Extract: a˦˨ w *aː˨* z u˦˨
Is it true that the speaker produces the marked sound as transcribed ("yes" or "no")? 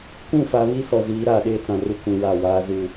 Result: no